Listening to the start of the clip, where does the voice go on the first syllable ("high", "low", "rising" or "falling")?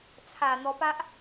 low